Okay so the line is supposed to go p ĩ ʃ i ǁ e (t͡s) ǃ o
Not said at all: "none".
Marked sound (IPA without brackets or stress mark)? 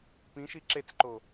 t͡s